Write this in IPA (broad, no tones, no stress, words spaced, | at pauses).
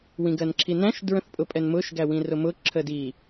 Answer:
wĩɡɜnǁʰinæ̃ʃ dɹə̃θpʼʊpʼɛnmʊʃ ɡæwĩrʊmʊ ǁʰədi